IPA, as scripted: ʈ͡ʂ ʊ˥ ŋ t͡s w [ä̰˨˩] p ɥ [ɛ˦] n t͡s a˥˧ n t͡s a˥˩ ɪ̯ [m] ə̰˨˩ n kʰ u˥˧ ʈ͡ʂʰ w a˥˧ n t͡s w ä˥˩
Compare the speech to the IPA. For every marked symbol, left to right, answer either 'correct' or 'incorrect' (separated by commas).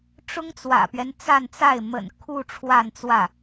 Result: correct, correct, correct